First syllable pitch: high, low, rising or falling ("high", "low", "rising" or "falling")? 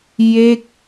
falling